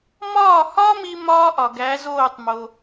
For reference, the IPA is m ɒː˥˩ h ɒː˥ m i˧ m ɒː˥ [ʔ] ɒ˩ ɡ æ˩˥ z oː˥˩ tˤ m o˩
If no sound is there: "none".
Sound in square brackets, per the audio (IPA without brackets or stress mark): ʔ